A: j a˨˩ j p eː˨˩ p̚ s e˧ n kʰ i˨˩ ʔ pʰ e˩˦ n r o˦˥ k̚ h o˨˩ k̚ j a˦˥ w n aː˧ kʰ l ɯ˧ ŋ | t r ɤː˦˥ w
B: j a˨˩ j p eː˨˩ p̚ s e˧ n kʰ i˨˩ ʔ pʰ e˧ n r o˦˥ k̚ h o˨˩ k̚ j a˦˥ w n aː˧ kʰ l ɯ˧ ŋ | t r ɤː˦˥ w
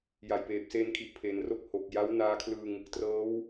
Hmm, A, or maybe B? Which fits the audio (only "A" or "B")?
A